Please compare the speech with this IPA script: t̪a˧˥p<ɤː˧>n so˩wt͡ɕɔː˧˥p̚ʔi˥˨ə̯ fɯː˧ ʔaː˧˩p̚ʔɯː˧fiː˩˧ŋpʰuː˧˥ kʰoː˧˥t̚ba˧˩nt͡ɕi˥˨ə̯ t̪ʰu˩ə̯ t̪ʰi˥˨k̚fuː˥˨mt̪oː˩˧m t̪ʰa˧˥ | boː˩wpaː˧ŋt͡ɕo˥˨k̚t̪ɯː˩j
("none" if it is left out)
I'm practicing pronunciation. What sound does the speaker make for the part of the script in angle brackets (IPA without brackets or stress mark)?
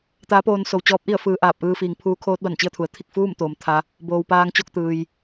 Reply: oː˧